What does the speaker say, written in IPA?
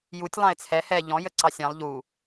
j u tʲ lˠ ɑ̃ ɪ̯ t͡sʰ ɛ h ɛ ʎ ɔ̃ j ə ǀ ɑ sʲ ɑ̃ lˠ ʎ u

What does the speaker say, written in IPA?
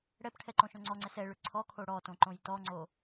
ɽ ɛ p ʈʰ ɛ ǃ õ ʃ õ ŋ͡ǀ ɔ ŋ͡ǀ ɛ s ɛ ɭ ʏ ǀʰ ɔ kʰ o ɽ ɔ t õ ǃ õ j t ɔ ŋ͡ǀ o

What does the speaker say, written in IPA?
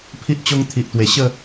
pʰ i˦ ʔ t͡ɕ o˦ ŋ t̪ʰ i˨ ʔ t̪ w e˨˩ ɕ ə˥˧

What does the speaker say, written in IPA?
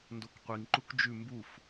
n d o k qʷ i ŋ ǃ u k d͡ʒ ʉ m b u f

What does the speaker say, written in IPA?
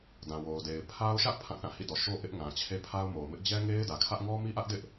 d ã˨ w o˨ ʊ̯ d e˨ ɪ̯ pʰ a˦ ʊ̯ ʃ ä˦ ʔ pʰ ã˦˨ θ ã˦˨ h ḭ˦˨ d ɔ˨ ʃ o˦ ʔ ɪ˦ ʔ ŋ ã˨ t͡ɕʰ e˦ pʰ a˦ ʊ̯ m o˨ ʊ̯ m ɪ˦ ʔ d͡ʑ ɛ˦ ŋ e˦ ɪ̯ d ä˨ kʰ ä˦ ʔ ŋ ɔ˦ m i˦ ʔ ä˦ ʔ d ɪ˦ ʔ

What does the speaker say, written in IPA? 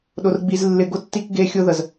ɗ ʊ˧ r ɡ͡b i˧ z lː ɪ˧ ɡ ʊ˦ tː i˦ k ɡ e˦ xʲ ʊ˦ ð ə˨ z

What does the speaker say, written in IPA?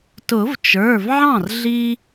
t ʊ˨˩˦ v t͡ʃ ə˞˩˧˩ v ʕ ɑ̃˥˩ r ɮ i˦

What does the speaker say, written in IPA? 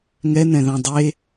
ŋ ɛ n ɛ̃ ð ɑ̃ dˤ e

